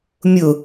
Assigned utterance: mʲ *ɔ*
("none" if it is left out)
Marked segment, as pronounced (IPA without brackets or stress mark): ʊ